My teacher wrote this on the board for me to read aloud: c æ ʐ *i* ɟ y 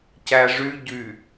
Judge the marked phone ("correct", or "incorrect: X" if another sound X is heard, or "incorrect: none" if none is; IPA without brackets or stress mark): incorrect: y